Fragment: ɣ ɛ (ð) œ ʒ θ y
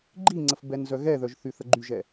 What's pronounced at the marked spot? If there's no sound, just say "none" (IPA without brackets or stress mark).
ð